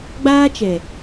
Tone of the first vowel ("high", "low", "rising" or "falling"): high